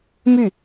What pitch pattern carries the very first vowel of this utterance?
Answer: falling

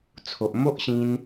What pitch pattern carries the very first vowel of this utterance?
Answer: low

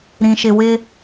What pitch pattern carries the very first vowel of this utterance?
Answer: high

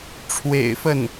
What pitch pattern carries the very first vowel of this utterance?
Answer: low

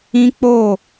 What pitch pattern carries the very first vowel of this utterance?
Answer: high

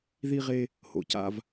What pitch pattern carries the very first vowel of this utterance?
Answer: high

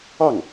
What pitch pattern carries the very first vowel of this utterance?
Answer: falling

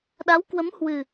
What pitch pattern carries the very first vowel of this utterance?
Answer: rising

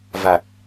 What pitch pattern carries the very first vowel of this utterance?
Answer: low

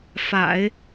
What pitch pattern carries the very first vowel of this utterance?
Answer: low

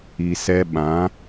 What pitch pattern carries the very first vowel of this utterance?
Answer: low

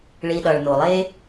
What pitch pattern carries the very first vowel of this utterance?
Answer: low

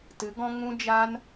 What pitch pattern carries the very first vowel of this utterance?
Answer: rising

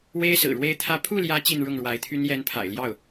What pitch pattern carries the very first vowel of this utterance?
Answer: high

